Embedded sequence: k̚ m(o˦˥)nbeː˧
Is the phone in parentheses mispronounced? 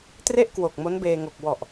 no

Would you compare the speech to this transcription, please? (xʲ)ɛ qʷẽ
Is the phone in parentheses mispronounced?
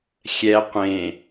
no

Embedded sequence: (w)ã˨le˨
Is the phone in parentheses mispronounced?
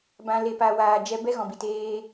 yes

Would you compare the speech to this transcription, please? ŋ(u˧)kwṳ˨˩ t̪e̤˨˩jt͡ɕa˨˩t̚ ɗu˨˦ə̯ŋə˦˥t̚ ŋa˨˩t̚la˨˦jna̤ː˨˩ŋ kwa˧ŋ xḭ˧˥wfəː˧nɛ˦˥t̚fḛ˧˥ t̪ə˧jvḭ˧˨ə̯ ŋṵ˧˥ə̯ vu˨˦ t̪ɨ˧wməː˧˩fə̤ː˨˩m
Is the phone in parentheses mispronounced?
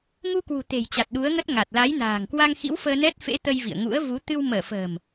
no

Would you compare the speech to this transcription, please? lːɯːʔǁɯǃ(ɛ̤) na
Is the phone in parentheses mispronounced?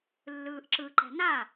no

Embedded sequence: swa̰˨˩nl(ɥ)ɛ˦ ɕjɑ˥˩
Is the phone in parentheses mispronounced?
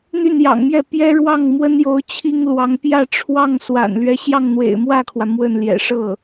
no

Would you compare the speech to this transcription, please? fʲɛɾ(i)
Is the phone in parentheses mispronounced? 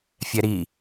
no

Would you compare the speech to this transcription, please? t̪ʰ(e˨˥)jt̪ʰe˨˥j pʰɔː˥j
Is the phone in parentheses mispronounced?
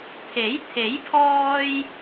no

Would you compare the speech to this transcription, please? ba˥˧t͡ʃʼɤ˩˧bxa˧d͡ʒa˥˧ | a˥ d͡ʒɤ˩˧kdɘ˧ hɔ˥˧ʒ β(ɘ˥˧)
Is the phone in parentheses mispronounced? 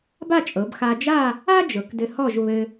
yes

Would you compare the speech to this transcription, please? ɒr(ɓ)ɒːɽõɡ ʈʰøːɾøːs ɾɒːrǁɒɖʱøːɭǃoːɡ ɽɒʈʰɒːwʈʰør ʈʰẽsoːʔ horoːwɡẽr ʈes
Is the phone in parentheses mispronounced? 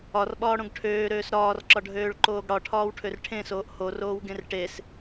no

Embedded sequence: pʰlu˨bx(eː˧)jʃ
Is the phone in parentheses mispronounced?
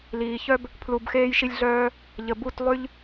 no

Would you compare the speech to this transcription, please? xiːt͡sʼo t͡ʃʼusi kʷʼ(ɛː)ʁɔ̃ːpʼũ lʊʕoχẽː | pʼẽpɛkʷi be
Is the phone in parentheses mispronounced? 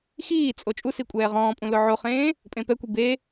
no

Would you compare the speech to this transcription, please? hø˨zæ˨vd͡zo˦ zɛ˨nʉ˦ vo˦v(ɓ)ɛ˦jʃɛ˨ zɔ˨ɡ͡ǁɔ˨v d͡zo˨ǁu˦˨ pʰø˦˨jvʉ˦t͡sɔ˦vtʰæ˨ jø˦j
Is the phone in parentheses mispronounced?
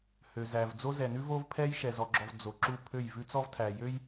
yes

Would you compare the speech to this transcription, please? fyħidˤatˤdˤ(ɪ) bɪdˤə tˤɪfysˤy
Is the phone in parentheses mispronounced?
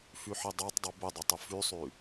yes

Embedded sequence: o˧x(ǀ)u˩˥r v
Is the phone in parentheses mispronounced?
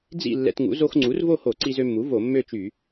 yes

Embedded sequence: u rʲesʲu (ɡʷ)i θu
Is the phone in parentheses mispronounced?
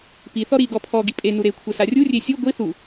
no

